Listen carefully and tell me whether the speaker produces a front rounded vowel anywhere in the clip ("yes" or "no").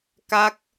no